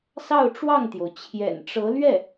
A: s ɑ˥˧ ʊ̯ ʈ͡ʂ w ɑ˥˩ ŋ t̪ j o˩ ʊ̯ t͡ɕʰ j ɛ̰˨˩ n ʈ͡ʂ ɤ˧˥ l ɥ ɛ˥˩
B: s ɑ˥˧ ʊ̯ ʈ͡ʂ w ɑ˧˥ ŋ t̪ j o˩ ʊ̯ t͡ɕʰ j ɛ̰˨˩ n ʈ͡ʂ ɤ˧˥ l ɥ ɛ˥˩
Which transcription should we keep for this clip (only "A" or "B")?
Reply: A